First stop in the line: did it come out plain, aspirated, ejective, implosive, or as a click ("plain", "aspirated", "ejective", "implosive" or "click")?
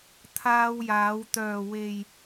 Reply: aspirated